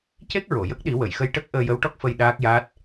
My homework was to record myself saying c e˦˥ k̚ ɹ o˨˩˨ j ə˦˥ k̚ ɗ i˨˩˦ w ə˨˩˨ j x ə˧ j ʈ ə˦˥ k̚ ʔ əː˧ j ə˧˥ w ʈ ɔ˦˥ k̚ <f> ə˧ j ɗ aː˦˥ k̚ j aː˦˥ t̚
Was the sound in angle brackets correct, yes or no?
yes